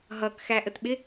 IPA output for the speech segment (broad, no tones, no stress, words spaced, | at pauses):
ɦʌkxæʔətɓɪ